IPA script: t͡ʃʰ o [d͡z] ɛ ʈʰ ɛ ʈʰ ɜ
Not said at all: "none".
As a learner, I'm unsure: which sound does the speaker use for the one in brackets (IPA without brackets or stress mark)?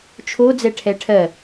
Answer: d͡z